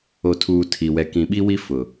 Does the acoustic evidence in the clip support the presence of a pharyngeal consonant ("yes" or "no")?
no